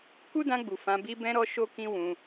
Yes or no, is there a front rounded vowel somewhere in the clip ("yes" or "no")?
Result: no